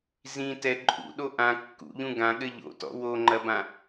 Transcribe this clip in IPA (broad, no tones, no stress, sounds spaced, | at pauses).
z ĩ t ɛ ǃʼ ṵ ɗ o ʔ ã kː ṵ ʎ ũ ɡ ã ɠ ɘ ʎ o̰ t ɔ̰ w o ŋ͡ǃ ɐ b ã